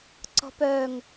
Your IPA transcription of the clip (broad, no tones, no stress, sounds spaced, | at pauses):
ǀ ɔ̤ p œ ŋ